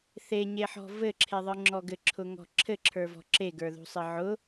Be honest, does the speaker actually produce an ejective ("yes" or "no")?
no